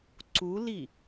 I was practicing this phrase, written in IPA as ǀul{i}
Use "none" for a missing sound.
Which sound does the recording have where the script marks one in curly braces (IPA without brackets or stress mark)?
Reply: i